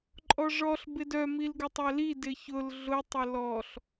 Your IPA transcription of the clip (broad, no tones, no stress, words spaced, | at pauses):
ǃʼɔʐɔɬ bɪdœ milɡʊtˤœli dɪçʊl ɮʊ tˤʊlɔɬ